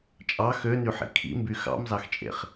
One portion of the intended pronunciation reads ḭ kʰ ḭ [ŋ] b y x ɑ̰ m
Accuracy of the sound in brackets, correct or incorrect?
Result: incorrect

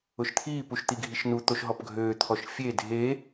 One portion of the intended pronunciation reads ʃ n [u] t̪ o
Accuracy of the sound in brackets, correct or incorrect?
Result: correct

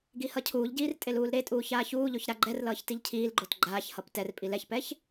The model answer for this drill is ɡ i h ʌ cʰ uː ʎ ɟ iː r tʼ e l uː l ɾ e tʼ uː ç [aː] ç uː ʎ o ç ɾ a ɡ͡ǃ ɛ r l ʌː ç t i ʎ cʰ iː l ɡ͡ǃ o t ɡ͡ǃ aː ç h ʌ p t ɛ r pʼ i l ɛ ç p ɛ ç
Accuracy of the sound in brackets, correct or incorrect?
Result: correct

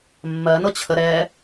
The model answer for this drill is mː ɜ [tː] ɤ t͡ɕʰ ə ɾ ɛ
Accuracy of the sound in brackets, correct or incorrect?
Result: incorrect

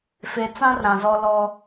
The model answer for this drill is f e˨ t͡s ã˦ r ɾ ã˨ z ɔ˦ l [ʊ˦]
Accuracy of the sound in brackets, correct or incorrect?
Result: incorrect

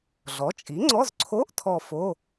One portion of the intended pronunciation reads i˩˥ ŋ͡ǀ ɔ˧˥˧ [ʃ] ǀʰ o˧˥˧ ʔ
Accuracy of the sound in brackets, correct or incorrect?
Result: incorrect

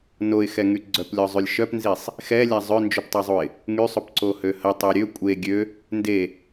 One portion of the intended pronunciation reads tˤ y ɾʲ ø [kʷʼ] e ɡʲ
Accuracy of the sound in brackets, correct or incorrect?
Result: correct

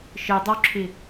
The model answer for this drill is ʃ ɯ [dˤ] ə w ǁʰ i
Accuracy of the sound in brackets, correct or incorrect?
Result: correct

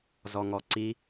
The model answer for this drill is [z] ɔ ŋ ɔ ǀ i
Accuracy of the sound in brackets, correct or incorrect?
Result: correct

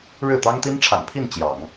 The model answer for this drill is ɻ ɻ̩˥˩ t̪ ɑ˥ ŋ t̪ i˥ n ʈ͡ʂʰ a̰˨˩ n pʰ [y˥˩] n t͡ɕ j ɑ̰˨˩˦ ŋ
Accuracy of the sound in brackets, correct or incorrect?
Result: incorrect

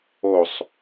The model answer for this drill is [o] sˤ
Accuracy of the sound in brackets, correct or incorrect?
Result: correct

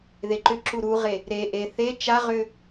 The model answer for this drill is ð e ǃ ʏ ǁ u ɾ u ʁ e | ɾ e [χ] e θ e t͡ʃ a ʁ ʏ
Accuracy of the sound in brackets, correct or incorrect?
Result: incorrect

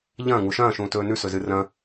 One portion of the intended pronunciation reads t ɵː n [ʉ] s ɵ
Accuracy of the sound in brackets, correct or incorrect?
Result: correct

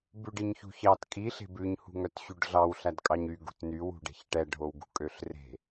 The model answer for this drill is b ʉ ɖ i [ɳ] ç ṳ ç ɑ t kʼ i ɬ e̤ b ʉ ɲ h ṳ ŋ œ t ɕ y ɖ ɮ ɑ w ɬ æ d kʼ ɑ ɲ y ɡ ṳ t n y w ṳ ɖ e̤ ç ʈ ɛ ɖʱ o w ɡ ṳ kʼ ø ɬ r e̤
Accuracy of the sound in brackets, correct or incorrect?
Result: incorrect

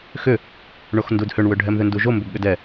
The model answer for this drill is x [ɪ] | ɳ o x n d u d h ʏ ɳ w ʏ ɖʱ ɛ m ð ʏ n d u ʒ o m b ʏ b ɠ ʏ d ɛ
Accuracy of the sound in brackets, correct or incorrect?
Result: incorrect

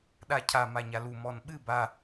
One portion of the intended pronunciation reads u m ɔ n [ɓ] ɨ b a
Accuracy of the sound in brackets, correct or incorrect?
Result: correct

